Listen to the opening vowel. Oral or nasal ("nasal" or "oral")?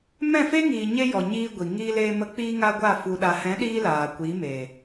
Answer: nasal